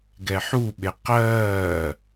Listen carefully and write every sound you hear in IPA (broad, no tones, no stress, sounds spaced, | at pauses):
ɡ ɛ ħ u ɓ e q ɜː